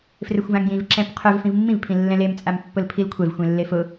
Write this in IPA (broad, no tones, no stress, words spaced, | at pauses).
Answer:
frɪxʷvãŋjĩv ǁɛ̃pqʰœv fĩvmːĩv pʰĩlːɛ̃lem t͡sʼampːʊlpʰilkʷʰɛv xʷẽlːefʊ